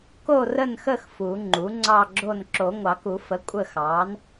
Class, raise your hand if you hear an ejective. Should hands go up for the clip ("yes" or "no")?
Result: yes